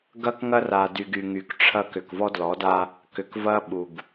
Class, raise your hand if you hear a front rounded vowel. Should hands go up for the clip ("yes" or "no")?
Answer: yes